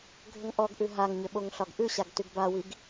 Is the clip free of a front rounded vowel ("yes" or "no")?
no